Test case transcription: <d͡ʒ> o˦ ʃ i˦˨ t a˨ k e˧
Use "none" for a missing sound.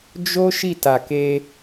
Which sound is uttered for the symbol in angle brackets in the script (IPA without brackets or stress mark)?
d͡ʒ